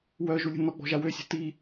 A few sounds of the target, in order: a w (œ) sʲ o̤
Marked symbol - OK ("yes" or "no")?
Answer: no